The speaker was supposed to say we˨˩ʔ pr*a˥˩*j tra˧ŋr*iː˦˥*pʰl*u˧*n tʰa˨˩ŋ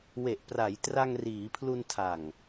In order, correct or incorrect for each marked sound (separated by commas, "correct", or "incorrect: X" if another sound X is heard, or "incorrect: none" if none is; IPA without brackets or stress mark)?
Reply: incorrect: a˩˦, incorrect: iː˩˦, correct